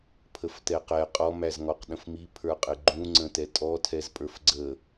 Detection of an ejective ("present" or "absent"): present